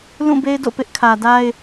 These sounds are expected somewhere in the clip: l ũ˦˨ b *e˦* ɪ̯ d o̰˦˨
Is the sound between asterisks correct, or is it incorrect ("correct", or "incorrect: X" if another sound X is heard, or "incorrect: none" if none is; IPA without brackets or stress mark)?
correct